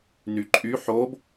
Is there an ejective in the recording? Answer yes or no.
yes